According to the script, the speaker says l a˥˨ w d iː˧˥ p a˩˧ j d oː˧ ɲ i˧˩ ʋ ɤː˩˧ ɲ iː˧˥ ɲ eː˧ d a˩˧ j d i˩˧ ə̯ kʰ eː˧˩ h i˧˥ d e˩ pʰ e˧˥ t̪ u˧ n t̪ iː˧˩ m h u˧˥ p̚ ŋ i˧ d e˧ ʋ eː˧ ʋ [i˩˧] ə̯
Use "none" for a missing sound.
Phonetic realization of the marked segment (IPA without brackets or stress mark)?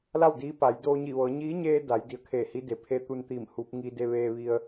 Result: i˧